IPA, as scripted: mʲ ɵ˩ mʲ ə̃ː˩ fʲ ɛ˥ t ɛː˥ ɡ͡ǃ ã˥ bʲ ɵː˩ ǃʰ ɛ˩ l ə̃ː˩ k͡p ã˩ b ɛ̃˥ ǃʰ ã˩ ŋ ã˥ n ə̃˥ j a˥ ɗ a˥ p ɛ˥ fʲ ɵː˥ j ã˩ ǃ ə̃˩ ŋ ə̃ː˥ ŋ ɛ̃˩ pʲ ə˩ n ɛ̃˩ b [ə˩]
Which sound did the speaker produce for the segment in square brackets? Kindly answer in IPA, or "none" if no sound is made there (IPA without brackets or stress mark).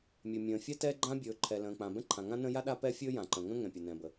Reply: ə˩